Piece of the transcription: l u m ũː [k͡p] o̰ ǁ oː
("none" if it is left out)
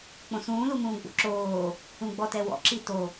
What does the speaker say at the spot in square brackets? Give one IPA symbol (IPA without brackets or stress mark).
ɡ͡b